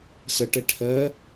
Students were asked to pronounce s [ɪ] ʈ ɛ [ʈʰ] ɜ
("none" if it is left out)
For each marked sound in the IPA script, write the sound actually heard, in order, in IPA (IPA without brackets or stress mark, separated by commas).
ə, ʈʰ